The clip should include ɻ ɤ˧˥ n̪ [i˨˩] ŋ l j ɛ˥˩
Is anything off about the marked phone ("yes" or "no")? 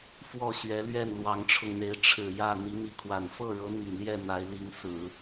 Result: no